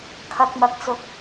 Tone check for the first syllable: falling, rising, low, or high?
low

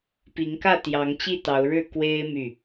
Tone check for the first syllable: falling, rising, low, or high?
rising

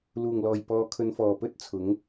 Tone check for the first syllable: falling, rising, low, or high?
low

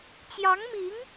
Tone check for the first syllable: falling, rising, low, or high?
rising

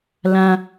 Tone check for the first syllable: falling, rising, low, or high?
high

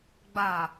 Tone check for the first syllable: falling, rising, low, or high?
low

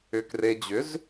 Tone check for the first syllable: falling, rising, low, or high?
low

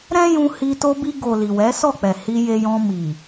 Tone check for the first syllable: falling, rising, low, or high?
high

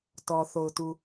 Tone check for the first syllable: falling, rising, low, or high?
low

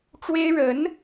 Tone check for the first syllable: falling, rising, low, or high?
high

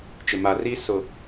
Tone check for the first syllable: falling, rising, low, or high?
low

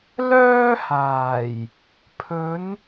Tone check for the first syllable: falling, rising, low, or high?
high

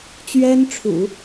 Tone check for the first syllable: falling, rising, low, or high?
high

